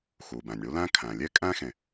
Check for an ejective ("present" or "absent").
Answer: present